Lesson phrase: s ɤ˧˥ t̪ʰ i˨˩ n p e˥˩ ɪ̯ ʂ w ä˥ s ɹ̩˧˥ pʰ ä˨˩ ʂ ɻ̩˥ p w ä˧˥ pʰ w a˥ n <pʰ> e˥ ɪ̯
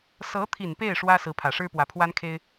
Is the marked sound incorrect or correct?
incorrect